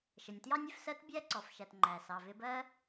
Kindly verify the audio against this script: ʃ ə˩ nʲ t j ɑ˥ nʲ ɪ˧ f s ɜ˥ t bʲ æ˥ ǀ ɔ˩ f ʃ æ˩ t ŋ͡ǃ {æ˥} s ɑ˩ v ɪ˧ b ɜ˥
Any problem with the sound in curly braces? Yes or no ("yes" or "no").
yes